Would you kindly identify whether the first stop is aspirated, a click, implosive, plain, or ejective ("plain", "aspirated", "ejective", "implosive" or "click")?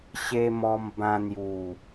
plain